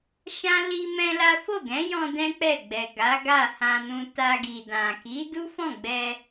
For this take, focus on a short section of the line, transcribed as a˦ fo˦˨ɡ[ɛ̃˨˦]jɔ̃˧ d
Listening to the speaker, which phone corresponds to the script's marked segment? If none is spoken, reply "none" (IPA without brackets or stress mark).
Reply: ɛ̃˨˦